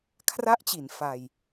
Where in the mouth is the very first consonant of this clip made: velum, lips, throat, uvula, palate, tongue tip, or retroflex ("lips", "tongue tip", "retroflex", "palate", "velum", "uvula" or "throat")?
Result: velum